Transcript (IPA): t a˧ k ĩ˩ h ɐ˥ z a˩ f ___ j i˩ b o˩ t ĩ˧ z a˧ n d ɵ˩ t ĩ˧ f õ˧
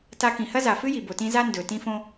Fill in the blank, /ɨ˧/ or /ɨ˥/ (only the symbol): ɨ˥